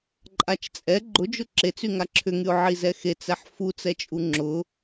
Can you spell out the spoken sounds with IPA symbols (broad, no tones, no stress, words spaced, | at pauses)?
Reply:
ǃʼat͡ʃt͡sʼɛ ɡ͡ǃʊd͡ʒʊ ǁet͡sy ŋaǁʰʏŋyʊ̯ ʕizɛxet͡sɛħ fut͡sɛt͡ʃʼu ŋ͡ǁʊ